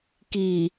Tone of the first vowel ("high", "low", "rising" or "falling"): low